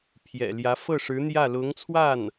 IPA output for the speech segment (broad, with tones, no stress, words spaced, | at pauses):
pʰjɛ̰˨˩ljä˧˥ fɤ˥˩ʂɻ̩˧˥n̪jä˥˩ lʊ˧˥ŋt͡sʰwa˥˩n